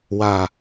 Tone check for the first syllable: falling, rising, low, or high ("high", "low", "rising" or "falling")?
low